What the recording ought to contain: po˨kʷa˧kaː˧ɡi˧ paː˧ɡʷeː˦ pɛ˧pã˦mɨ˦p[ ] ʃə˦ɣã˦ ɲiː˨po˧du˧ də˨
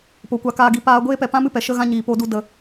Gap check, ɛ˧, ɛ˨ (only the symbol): ɛ˨